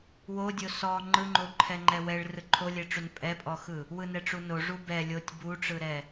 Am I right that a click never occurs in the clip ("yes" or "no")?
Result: no